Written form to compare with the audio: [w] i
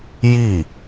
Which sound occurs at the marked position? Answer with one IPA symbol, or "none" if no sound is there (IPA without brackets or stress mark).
j